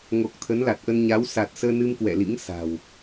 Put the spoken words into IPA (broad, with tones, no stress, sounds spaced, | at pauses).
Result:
ŋ o˨˩ k̚ t̪ʰ ə˨˦ n l a˨˩ t̚ ʔ ə˧ n ɲ a˨˦ w s a˨˩ t̚ s əː˧ n ɨ˧ m k w ɛ̰˧˨ l ḭ˧˥ ŋ s a̤˨˩ w